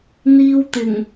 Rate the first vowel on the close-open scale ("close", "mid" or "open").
close